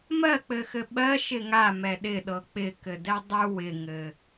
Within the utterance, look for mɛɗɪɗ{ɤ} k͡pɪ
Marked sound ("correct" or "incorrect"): correct